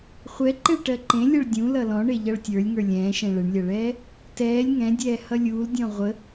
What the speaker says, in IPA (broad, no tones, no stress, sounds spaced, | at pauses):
χʷ ɛ ǃ e ɭ ʈ ɜ ǃ ẽ lʲ ʌ ɭ dʲ ũ l ʌ l ɔ̃ ɳ e ʎ ʌ ɭ tʲ ə˞ lʲ ŋ ə˞ lʲ ɛ̃ː ʃ ɛ̃ ɭ ə ɳ lʲ ʌ ɭ ɛː | t ɛː lʲ ŋ ɛ̃ dʲ ɛː h ʌ lʲ uː l dʲ ɔ̃ ʁʷ ə